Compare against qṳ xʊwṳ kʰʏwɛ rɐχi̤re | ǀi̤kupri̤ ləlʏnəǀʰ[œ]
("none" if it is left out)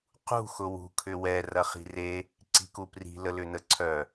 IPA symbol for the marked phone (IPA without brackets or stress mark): œ